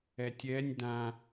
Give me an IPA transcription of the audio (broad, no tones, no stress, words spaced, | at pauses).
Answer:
ɛtʲɛnʲ dã